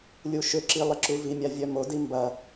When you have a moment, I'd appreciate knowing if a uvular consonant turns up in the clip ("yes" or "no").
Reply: no